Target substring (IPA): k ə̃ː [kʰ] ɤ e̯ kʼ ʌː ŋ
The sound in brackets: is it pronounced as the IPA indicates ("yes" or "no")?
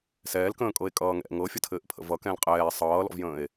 no